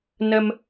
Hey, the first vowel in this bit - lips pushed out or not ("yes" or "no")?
no